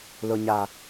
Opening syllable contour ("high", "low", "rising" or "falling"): low